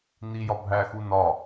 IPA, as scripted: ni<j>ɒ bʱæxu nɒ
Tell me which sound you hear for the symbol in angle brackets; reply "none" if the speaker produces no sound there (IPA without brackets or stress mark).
j